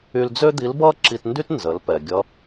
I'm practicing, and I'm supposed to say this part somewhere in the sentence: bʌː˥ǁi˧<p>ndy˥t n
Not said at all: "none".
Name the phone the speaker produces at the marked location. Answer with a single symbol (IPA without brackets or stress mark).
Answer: t